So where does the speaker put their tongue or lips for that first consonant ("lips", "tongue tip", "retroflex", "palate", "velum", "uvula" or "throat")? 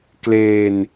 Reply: velum